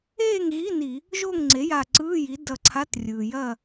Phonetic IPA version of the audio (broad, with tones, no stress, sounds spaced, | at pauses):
eː˥˨ ŋ ɣ i˧˥˧ n i˧˩˧ | ʒ o˥˨ ŋ ŋ͡ǀ e˩˥ j a˧˩ ǀ ɯː˧˥˧ j i˩˥ d ʌ˧˩ ǀʰ a˧˥˧ t rʲ ɯː˩ j ɐ˥˨